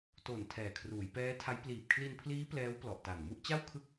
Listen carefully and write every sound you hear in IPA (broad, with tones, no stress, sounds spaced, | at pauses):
t o˨˩ n tʰ ɛː˨˩ kʰ r uː˩˦ j p ɛː˦˥ tʰ a˦˥ j p l iː˨˩ p̚ kʰ l i˧ n pʰ l iː˦˥ p l ɛː˦˥ w p l ɔ˨˩ ʔ t a˨˩ n m u˥˩ ʔ t͡ɕ a˥˩ w kʰ ɯ˦˥ k̚